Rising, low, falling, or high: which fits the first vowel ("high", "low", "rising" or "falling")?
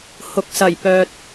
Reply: low